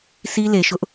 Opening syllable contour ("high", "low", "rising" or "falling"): high